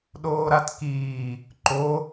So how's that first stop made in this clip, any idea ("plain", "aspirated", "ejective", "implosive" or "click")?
implosive